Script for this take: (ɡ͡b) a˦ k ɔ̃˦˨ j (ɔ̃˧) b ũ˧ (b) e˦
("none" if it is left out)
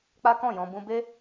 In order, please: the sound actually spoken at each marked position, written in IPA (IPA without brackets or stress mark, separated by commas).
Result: k͡p, ɔ̃˧, b